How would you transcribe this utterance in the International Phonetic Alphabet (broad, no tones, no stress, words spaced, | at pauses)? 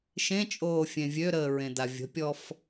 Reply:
ʃẽt͡ʃʼoː fʲẽvʲøɾəː ɹẽdavʲə̤pʲɔf